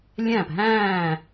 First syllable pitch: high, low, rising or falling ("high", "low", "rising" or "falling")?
falling